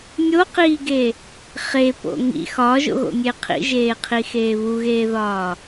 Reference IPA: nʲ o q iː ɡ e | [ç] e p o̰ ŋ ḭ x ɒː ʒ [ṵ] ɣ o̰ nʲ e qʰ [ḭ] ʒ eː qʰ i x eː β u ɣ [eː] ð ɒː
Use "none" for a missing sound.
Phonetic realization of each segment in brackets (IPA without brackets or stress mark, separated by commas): χ, o̰, ḭ, eː